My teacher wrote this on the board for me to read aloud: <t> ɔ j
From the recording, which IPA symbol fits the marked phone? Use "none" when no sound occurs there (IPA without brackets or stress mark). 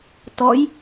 t